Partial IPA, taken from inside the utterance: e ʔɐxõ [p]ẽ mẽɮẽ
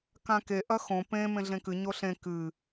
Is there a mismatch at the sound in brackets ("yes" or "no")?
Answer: no